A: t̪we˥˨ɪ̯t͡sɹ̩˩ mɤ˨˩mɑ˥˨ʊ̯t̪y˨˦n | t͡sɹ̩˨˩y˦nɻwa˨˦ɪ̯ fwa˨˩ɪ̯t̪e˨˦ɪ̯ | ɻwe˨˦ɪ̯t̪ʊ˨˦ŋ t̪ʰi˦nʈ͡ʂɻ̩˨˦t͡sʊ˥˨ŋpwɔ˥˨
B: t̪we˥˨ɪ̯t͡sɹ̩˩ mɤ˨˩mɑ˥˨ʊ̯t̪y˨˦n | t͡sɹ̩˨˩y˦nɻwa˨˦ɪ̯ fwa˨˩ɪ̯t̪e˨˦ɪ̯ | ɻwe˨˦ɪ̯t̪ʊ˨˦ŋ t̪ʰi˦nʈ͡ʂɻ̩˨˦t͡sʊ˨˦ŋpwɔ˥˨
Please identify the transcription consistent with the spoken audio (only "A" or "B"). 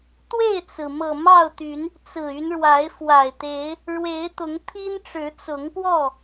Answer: B